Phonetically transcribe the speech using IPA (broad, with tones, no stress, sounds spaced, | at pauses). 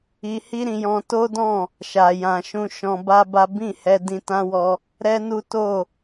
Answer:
i˧ h i˦ ɾ ĩ˧ j ɔ̃˧ t o˦ d ɔ̃˦˨ | ʃ a˨ j ã˨ ʃ ũ˧ ʃ ɔ̃˧ b a˦ b a˦ b ĩ˦˨ h ɛ˧ d ĩ˧ t ã˦ w ɔ˧ | ɾ ɛ˦ n u˦ t o˦˨